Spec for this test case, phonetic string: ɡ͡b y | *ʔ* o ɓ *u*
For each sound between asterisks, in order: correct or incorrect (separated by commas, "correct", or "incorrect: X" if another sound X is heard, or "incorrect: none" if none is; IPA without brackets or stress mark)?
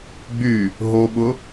incorrect: ɦ, incorrect: ʊ